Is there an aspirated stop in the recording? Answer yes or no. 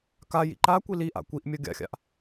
no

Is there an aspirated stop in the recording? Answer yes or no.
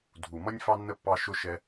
no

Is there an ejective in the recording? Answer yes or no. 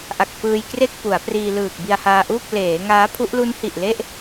no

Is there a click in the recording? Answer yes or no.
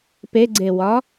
yes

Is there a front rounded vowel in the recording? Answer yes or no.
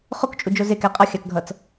no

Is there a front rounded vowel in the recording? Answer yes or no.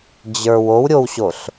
no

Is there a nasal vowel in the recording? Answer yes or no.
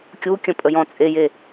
yes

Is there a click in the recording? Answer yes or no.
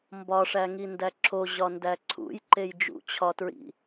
yes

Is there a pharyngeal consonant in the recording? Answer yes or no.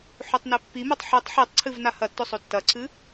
yes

